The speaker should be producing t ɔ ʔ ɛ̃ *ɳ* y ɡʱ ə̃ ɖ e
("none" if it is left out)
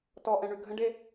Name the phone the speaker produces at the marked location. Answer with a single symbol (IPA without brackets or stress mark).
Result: ɳ